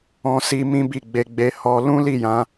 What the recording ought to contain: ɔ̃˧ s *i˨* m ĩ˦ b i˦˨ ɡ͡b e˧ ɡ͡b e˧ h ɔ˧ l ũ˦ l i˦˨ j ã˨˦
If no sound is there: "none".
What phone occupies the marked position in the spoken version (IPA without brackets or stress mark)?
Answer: i˧